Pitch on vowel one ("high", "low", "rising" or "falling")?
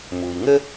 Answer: low